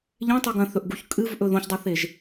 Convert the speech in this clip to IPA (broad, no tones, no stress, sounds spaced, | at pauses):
ʎ ẽ tˤ ʉ ɡ ɐ̃ θ ɵ ʔ ɡ u ç kʼ ɨ v ʔ ɵ ð õ ç dˤ o θ e ʒ